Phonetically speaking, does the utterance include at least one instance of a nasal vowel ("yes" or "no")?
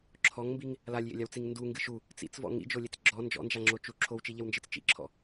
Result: no